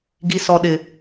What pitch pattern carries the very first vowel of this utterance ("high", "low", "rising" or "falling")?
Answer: high